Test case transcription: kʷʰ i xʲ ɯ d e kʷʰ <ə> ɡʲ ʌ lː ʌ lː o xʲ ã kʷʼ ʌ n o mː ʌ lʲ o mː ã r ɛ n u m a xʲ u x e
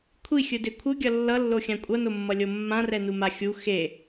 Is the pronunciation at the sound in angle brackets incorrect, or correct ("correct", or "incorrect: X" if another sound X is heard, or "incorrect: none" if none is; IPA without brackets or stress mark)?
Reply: incorrect: ɯ